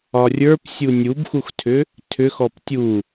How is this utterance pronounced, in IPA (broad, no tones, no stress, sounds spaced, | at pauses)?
ɒ rʲ ə˞ p sʲ u nʲ u b x u x tʰ ʏ | tʰ ʏ x ɔ p tʲ u